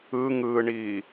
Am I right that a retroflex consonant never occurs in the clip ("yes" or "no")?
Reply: no